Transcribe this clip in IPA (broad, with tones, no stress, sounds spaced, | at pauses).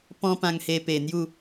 p ɔ̃˦ p ã˧ ŋ h e˧ p e˨˩ n̪ j u˥˧